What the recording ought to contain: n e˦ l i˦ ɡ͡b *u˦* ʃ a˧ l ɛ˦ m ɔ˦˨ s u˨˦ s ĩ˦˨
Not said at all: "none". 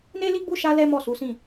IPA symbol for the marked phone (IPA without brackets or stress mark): u˦˨